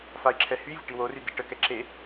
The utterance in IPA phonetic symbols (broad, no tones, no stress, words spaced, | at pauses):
fai̯ǁʰɛhyvʲə ʈiwory diʈəkɛ ǁe